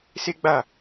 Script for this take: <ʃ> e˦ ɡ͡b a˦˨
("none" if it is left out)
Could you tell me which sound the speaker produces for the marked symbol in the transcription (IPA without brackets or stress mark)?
s